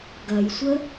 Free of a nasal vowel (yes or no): yes